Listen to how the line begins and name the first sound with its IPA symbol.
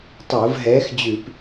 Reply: tˤ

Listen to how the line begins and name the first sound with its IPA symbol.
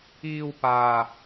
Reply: iː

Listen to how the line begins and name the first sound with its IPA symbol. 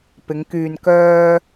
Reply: p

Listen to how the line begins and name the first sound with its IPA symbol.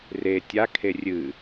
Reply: r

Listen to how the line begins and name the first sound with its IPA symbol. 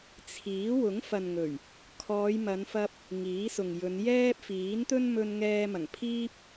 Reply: t͡sʰ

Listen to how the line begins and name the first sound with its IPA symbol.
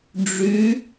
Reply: ɖ͡ʐ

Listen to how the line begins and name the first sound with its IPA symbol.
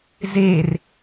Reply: z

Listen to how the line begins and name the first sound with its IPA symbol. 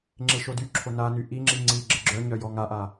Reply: ŋ͡ǁ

